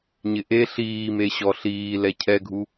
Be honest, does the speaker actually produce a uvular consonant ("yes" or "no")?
no